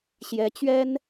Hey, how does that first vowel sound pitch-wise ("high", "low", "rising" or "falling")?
rising